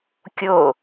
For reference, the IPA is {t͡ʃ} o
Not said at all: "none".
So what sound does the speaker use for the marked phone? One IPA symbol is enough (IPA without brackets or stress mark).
kʲ